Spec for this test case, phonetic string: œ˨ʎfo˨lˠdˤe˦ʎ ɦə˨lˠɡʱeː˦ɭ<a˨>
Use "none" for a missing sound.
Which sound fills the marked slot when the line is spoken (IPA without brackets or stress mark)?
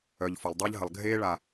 a˨